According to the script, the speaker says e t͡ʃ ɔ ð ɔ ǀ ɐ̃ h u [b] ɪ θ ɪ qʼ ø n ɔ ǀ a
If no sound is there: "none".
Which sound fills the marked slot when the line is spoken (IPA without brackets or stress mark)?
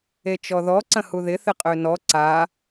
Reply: ð